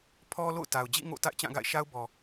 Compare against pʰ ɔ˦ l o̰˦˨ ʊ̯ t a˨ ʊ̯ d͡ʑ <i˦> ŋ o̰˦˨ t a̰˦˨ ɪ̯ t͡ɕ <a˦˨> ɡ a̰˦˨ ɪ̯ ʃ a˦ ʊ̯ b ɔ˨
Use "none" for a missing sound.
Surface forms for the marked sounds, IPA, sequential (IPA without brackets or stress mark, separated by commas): ḭ˦˨, ã˦˨